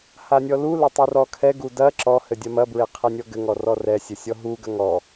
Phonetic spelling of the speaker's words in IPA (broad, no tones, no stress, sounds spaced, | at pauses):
h a nʲ ɔ l u l ɐ tˤ u r ɔ kʰ ɛ ɡ u d ɐ ǁ ɔ h ɘ dʲ ɐ m ɐ b ɹ e qʰ ɘ nʲ ɔ ɡ ɘ ŋ ɔ r ɔ r ɛ sʲ ɘ sʲ ɔ ɦ u ɡ ɐ ŋ ɔ